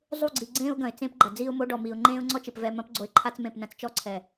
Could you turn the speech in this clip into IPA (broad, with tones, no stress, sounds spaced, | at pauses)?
zˤ u˦˨ ɡ͡ǀ i˨ ɡ͡ǀ ẽː˦ ʊ̯ ɡ ɐ̃˨ ɪ̯ t͡s ẽ˦ p ɡ͡ǃ ɐ˨ d͡z iː˦ ʊ̯ m o˦ ɖ ɔ˨ m iː˨ ʊ̯ ŋ͡ǃ ẽː˦ ʊ̯ ŋ͡ǀ ɔ˦ t͡ʃ ɨ˨ p v ɛ˨ m ɐ̃˨˦ p ɡ͡ǀ o˨ ɪ̯ ǃʰ a˦ t͡s m ẽ˦˨ p n ɐ̃˦ t͡s t͡ʃ ɔ˦ ǀʰ ɛ˨